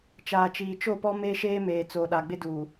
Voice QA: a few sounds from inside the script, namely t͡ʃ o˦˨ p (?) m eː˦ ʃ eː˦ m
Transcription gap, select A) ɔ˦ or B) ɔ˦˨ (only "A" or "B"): A